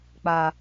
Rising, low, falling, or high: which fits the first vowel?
low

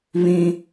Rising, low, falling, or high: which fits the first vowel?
high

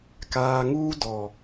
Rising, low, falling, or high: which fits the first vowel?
low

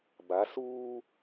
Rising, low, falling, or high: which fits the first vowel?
rising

